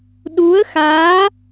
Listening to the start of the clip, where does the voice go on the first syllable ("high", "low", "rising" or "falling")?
rising